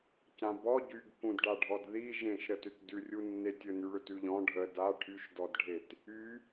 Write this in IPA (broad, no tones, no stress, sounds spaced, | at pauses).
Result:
c ã b ɔ ɟ y ɡ k ũ d ɖ a ɖʱ ɔ d ð i ʒ ẽ ʃ ɾ ə t ʏ t d ʉ rʲ u nː e tʲ ɵ n y ɭ ʏ t ʉ ʎ ɔ̃ ɖʱ ə d a ʈʰ y ʃ d ɔ d ɖʱ e t | y